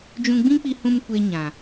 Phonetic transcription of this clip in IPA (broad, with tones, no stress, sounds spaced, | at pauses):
d͡ʒ ũ˧ ɡ͡b ĩ˦ k͡p i˧ h ũ˧ m kʷ e˧ ɲ ã˨